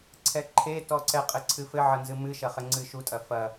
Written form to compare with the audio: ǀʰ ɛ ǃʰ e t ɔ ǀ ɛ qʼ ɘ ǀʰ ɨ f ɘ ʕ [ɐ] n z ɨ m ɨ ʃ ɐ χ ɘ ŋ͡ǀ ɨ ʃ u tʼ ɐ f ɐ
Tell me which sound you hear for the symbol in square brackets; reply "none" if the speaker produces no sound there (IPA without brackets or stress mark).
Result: ɐ